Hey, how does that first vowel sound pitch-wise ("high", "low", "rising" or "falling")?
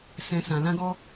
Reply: low